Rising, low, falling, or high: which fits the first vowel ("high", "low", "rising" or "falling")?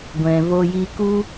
low